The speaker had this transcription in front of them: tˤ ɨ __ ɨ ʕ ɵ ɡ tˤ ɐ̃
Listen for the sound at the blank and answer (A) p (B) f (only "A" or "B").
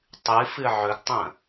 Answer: B